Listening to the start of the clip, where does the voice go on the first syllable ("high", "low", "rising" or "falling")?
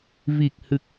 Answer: low